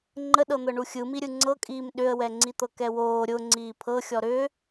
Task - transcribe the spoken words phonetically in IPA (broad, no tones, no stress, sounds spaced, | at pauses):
ŋ͡ǃ ə ɗ ɤ n̪ ɤ ɳ u xʲ ɯ m i ɾʲ ɯ ŋ͡ǀ ɤ kʼ iː m ɗ ʏ ə̯ w ɛ ŋ͡ǀ i t̪ ɤ k ɛ w oː ɾʲ ʊ ŋ͡ǀ iː pʰ ɤ xʲ ɔ ɾ ʏ